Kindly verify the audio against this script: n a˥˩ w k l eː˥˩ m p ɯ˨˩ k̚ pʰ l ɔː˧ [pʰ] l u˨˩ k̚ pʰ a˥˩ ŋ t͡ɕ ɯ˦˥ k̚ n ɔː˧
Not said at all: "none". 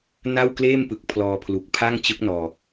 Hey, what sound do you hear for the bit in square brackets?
pʰ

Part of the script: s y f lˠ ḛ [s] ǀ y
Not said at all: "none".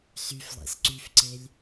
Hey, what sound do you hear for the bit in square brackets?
s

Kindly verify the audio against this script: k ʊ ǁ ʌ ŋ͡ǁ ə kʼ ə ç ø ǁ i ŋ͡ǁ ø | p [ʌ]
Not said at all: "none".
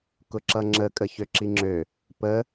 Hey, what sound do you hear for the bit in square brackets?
ə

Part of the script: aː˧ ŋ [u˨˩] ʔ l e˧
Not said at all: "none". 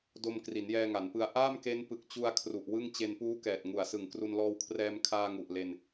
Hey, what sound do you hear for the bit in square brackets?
u˨˩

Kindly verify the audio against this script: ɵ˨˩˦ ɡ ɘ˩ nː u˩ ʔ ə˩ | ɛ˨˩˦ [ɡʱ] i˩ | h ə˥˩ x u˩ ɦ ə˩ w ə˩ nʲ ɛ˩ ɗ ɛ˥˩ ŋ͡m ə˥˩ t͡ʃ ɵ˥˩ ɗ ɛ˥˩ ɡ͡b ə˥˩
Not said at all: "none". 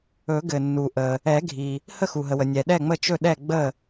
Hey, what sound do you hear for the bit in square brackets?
ɡʱ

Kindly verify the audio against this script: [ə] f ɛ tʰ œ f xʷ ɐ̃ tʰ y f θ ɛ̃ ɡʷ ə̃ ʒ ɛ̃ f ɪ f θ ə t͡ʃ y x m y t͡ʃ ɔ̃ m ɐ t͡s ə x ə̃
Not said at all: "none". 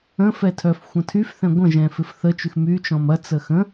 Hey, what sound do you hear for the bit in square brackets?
ə̃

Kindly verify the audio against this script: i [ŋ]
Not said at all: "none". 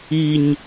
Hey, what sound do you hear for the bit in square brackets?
ɲ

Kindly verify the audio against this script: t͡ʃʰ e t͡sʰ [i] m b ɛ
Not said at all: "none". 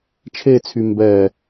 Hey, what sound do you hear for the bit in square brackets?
y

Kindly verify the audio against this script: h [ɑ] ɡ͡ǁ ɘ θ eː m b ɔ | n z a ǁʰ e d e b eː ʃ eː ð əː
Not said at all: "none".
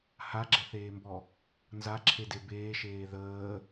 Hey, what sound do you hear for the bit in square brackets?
a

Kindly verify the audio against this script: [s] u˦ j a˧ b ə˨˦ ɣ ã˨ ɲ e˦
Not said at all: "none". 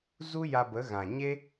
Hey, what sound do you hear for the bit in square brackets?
z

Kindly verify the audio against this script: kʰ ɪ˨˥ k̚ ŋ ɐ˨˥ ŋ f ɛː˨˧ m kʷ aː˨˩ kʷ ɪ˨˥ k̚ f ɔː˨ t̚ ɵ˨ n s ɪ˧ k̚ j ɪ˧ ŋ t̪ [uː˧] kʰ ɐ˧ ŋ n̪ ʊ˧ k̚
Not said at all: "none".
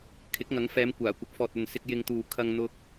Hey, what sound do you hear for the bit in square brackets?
uː˨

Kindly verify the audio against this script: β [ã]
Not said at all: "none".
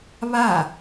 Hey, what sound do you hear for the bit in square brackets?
a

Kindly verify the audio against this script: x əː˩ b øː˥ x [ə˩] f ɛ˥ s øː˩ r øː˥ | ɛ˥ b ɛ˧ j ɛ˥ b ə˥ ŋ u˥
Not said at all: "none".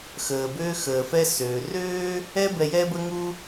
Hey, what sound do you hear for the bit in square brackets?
əː˩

